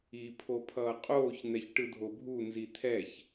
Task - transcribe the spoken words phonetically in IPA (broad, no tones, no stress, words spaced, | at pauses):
i pʰopʰʌːqʼoːç n̪ɛçʈɯdʱobʱu nzit̪ʰɛç